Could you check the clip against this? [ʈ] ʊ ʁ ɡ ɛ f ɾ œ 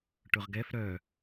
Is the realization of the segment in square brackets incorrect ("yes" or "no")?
no